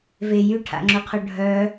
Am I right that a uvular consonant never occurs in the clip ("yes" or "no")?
no